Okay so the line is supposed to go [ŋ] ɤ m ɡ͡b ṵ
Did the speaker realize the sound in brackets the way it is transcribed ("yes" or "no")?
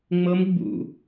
no